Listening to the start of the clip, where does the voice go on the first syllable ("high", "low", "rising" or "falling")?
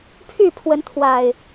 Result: falling